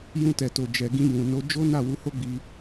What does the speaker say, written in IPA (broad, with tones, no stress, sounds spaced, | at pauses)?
j ũ˧ t ɛ˨ t o˨ d͡ʒ ɛ˨ ɡ ĩ˧ j ũ˨ n o˨˦ d͡ʒ o˦ n a˦˨ w u˧ h o˦ ɡ͡b i˧